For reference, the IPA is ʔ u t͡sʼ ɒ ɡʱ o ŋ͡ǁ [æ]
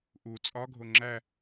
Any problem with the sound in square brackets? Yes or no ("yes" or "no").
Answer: no